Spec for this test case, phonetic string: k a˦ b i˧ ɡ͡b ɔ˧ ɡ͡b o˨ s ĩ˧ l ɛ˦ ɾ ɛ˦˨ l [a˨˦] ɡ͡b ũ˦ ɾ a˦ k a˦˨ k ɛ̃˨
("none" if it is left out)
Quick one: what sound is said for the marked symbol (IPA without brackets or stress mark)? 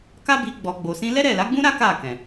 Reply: a˨˦